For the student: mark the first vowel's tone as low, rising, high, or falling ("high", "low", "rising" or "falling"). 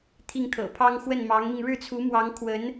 falling